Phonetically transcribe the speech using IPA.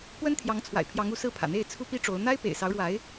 p w ə˥ n t̪ʰ j ɑ˧˥ ŋ t͡sʰ w a̰˨˩ ɪ̯ pʰ j ɑ˧˥ ŋ u˧˥ s ɹ̩˥˩ pʰ ä̰˨˩ n̪ e˥˩ ɪ̯ t͡sʰ u˥ p i˥ ʈ͡ʂ o˧˥ ʊ̯ n̪ a˥ ɪ̯ p ḛ˨˩ ɪ̯ s ɑ˧˥ ʊ̯ ɻ w a˧˥ ɪ̯

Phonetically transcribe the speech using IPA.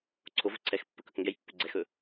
ǀʰ o v ɵ ǀʰ ɛ x pː ə k ɵ k ŋ ɡ ɛ j pː ʏ ɡ͡ǀ ɛ x ɵ

